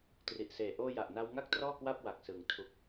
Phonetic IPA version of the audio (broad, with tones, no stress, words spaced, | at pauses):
tri˨˩ʔseː˨˩ ʔoː˧ja˨˩ʔna˧w ŋa˥˩k̚trɔː˥˩ kwa˥˩p̚wa˨˩k̚sɯ˩˦ŋ tʰu˨˩k̚